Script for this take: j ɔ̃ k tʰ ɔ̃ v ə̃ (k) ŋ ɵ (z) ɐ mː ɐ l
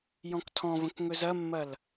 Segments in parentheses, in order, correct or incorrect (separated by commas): correct, correct